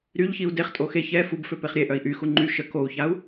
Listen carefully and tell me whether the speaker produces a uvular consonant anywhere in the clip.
yes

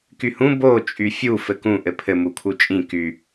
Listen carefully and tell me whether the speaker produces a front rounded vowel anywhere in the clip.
yes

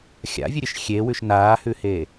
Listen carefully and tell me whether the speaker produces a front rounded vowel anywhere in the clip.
no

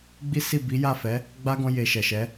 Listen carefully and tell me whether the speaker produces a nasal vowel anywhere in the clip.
yes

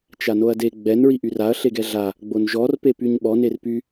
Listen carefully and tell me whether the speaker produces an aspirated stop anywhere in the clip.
no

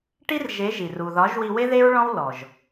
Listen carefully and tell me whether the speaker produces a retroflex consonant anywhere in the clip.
yes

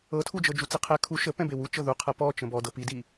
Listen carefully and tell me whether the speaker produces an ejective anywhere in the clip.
no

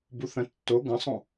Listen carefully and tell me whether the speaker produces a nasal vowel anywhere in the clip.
yes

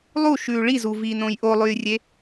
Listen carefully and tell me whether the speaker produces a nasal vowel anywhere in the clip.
yes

